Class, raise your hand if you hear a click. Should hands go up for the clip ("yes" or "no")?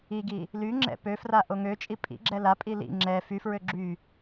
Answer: yes